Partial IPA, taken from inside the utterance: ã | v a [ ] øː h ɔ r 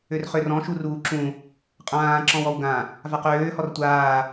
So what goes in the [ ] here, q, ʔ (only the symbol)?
q